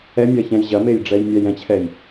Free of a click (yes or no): yes